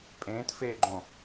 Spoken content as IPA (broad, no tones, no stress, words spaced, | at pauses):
pʼẽːtfeːɡ͡ǃõ